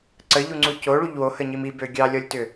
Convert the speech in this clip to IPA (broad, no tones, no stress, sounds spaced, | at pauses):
ǀ ə ʎ u ŋ͡ǀ u c o ɭ u ʎ w o h ə ɲ i m i b ø ɡʲ ɑ lʲ ɔ lʲ t ʏ